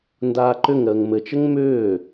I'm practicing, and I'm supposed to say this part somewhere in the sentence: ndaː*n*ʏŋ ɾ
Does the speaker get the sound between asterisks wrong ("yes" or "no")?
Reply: yes